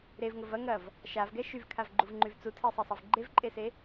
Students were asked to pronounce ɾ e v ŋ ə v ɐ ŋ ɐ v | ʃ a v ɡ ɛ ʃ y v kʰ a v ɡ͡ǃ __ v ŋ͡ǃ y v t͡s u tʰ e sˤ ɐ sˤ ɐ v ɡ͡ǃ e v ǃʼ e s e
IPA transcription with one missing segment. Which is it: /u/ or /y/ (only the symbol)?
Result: u